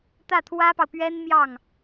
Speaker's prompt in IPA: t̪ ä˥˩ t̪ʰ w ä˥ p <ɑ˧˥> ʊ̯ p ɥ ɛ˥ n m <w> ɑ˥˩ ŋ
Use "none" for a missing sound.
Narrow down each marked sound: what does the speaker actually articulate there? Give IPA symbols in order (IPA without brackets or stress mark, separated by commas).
ɑ˨, j